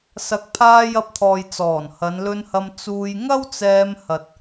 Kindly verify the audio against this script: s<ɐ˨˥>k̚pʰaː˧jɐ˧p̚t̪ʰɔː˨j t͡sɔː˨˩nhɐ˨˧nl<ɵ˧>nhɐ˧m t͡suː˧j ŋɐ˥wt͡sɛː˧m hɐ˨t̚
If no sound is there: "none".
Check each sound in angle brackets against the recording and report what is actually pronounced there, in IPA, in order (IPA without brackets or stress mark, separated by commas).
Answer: ɐ˨˥, ɵ˧